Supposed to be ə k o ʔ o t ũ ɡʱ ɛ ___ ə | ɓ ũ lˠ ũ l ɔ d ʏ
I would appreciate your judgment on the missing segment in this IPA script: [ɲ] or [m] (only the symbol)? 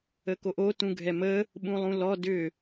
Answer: m